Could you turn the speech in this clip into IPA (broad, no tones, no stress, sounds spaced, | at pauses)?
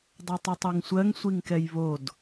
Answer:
dˤ ɜ tˤ i tˤ o ŋ sʷ ɜ ŋ sʷ i ŋ k ɛ j β o d